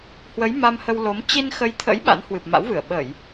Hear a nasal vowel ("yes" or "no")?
no